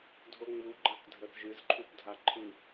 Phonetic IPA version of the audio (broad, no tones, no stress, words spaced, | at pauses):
dʱoŋ͡mu ɡ͡ǃakdʱəθʒɨz ǃʰupdʱaǃʰɨ